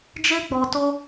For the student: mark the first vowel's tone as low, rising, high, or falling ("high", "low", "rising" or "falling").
high